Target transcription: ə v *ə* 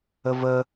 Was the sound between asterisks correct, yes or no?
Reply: yes